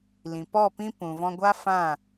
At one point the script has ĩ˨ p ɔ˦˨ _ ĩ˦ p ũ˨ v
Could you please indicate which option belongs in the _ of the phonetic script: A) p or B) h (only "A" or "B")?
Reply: A